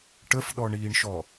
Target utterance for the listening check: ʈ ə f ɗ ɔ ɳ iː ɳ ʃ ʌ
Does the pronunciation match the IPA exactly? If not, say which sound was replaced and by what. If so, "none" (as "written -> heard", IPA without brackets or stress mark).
ʌ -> ɔ